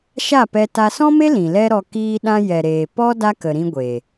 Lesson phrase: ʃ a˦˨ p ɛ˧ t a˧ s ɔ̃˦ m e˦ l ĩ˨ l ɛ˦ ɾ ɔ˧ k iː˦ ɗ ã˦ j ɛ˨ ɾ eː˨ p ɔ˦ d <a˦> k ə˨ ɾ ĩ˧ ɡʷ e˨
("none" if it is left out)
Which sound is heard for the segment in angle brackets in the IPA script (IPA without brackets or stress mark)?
a˦